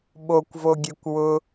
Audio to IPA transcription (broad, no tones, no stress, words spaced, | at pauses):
ɓokʷvoɡʲekʷ wʊ